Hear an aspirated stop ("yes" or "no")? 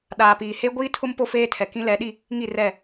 yes